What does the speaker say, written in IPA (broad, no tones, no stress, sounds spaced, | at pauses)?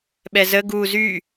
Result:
ɓ ɛ z ə ɡ u z y